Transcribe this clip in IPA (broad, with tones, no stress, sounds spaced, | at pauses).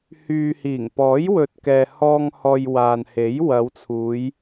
h yː˨ h iː˨˩ ŋ p ɔː˨˥ j w ɵ˨ t̚ k ɛː˨ h ɔː˧ ŋ h ɔː˨ j w aː˨ n h e˨˥ j w ɐ˨˧ w t͡sʰ uː˨˧ j